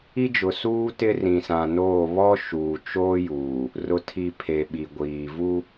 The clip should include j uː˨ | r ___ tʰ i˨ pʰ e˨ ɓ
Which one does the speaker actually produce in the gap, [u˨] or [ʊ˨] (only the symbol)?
ʊ˨